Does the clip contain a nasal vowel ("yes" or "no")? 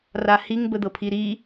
no